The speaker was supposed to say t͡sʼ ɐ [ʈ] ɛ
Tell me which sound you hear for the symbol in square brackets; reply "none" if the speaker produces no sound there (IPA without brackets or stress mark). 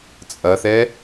θ